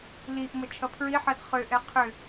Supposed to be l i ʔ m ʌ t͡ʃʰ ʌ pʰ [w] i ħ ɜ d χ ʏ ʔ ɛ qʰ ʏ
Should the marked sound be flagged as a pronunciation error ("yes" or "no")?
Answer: yes